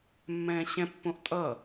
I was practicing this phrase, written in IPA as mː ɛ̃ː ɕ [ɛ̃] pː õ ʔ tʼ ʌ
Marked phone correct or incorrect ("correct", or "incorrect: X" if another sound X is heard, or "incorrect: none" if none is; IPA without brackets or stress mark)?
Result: correct